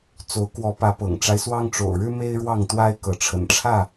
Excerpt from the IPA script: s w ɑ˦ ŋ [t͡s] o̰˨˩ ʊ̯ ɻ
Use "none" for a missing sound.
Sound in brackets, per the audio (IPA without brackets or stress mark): ʈ͡ʂ